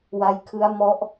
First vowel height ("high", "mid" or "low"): low